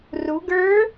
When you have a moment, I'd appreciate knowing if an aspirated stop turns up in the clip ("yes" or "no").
no